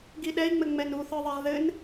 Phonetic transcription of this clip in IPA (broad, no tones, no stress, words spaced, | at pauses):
ɡiɗɛi̯ŋ͡mɘ ŋ͡mɛnuθə˞ðˤɛʁ ðɘn